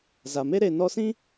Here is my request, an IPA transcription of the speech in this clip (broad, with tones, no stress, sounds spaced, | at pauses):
z a˨ m e˦ ɾ e˨ n ɔ˧ s ĩ˦